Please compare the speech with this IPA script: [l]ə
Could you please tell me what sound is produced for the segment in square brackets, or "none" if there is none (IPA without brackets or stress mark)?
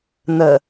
n̪